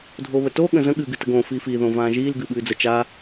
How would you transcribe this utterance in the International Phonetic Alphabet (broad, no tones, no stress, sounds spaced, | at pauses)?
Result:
dʱ o β ə t o ɠ ə̃ z ə̃ ɠ ɨː ɡ ɨ t ə ɡ õ f iː f i ð õ v ãː ʒ iː l ɡ ɨː ɓ ɨː d͡z ə t͡ʃ a